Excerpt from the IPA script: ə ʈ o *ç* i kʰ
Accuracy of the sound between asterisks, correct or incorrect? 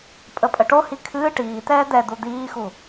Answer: incorrect